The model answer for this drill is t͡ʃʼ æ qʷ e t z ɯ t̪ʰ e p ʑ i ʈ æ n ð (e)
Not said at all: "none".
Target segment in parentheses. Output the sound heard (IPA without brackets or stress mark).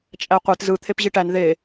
e